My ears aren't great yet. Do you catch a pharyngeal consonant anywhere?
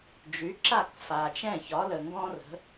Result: no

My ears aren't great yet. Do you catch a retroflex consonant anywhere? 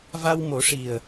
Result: yes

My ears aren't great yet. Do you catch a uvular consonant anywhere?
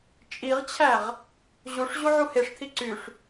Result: yes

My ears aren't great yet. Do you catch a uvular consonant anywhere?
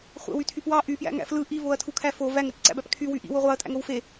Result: yes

